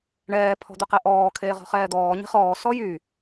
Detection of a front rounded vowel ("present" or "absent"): present